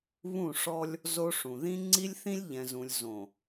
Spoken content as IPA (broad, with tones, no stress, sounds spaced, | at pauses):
β ũ˦˨ ʂ ɔ˦ lʲ | z o˦ ʂ ũ˨ ð ĩ˦ ŋ͡ǀ i˦ lʲ θ ĩ˦ lʲ ʎ ɛ̃˨ z ũ˨ lʲ z õ˨